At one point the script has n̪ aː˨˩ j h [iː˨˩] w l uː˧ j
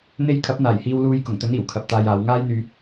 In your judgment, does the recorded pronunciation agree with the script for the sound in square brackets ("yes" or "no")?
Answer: no